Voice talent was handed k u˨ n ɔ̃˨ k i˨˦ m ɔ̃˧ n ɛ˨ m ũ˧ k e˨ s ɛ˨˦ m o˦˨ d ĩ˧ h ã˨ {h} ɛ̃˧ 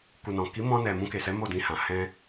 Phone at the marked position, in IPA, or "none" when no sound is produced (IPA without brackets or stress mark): h